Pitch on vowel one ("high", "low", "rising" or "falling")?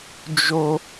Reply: high